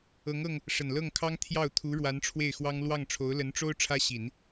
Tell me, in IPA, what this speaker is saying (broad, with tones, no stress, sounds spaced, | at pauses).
ɤ˧˥ ŋ ɤ˧ ŋ | ʂ ə˨˩ n l ɤ˥˩ ŋ kʰ ɑ˥ ŋ t̪ʰ j ɑ˥˩ ʊ̯ t̪ʰ u˧˥ ɻ w a˧˥ n ʈ͡ʂʰ w e˥˩ ɪ̯ x w ɑ˥ ŋ l w ɑ˥˩ ŋ ʈ͡ʂʰ o˧˥ ʊ̯ l ə˧˥ n ʈ͡ʂ o˥ ʊ̯ ʈ͡ʂʰ ä˥ ɕ i˨˩˦ n